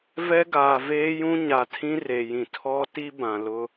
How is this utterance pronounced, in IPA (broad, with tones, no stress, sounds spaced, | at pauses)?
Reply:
v ɛ˦ ɡ aː˨ v eː˦ j ũ˦ ɲ a˨ tʰ ĩ˦ r e˨ j ĩ˨ tʰ ɔ˦ t i˦ b ã˨ l ʊ˦